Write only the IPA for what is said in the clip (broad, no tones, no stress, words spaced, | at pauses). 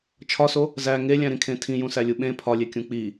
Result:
t͡ʃʰɒso | zæ ŋelʲæ̃ɾĩkʰẽ tʰĩjũsælʲu ɓẽ pʰɒlʲekʲũ k͡pi